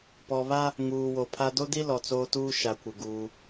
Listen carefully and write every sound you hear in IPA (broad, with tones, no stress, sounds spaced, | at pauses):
p ɔ˨ β a˦ | ŋ uː˨ w o˨ pʰ a˦ d o˦ d i˦ l ɔ˨ t͡s oː˦ t uː˦ ʃ a˨ kʷ ɪ˨ ɡ uː˦